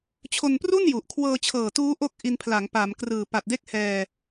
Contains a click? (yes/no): no